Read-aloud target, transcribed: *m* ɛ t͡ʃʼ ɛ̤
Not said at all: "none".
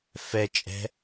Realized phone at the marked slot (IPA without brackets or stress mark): f